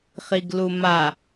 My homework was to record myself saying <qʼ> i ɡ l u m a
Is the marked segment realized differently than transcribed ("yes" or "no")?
yes